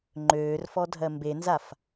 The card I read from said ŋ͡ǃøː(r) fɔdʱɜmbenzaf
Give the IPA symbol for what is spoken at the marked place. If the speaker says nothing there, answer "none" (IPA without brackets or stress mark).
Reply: r